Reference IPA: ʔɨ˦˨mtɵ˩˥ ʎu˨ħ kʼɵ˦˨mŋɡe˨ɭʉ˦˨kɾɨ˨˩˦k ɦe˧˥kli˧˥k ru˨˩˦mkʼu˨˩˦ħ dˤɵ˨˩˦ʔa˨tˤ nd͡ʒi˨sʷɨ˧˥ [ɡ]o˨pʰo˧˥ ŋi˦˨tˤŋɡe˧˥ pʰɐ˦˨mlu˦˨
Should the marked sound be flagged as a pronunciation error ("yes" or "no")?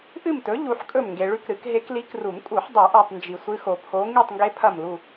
yes